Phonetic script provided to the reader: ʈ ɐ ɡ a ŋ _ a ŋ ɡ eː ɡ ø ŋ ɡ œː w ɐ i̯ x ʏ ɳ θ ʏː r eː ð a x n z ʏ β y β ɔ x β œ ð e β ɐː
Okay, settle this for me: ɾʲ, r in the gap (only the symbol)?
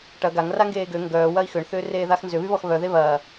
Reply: r